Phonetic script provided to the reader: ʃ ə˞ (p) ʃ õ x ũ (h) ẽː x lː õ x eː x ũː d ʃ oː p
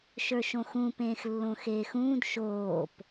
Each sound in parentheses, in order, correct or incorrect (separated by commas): incorrect, incorrect